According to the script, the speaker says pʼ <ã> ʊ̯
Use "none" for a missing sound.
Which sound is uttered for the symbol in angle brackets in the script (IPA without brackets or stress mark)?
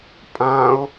ã